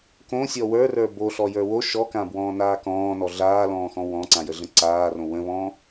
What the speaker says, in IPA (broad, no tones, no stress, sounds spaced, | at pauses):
k õ sʲ ɔ w ə˞ r ə˞ b o ɬ ɔ j ə˞ w o ʃ ɔ k ã b w ɔ̃ː n aː k ɔ̃ː n ɔ ɮ aː l ɔ̃ː x ɔ̃ w ɔ̃ ǀ ã j ə ɮ ə̃ ǀ aː r õ w ə̃ β ɔ̃ː